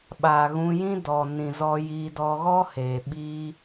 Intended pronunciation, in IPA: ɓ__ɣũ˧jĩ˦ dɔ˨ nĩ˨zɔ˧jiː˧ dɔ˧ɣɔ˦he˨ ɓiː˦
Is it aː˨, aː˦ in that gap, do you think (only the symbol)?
aː˨